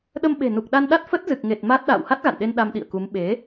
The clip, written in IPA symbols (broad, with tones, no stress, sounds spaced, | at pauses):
ɗ ə˧ m ɓ e̤˨˩ n u˨˩ k̚ ɗ a˧ n ɗ a˦˥ t̚ f ə˦˥ t̚ z ɨ˨˩ k̚ ŋ e˨˩ t̚ m a˦˥ t̚ ɗ a̰ː˧˨ w h a˦˥ t̚ ɣ a̰˧˨ n ɗ e˧ n ɗ a˧ m ɗ ḭ˧˨ ə̯ k u˨˦ m ɓ e˨˦